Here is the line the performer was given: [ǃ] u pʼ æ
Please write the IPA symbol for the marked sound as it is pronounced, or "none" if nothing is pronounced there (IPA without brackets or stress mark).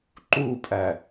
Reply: ǃ